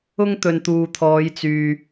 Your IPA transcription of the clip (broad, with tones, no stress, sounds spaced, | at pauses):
ʊ˥ ŋ t̪ ɵ˨ n t̪ uː˨ t̪ʰ ɔː˨˧ j t͡s yː˨